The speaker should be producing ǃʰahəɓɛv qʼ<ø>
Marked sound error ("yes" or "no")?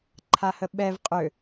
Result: no